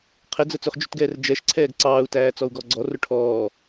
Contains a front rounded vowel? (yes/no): no